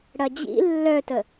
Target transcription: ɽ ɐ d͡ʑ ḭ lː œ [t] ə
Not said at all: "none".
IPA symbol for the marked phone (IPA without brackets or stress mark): t